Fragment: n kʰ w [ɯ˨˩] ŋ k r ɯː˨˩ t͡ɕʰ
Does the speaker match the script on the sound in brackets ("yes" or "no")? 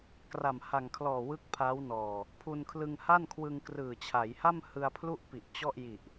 no